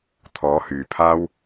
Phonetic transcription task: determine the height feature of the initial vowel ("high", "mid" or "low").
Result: mid